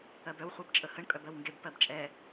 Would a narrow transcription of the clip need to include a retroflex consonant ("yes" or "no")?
yes